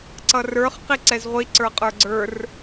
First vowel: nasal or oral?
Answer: oral